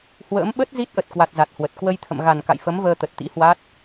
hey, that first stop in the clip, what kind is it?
implosive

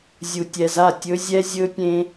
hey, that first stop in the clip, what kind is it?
plain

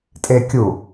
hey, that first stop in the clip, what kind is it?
ejective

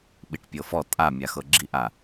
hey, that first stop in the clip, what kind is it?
implosive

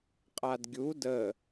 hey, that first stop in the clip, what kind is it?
ejective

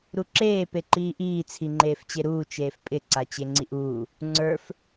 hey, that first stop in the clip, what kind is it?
click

